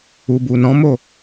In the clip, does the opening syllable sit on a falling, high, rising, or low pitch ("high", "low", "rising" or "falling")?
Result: low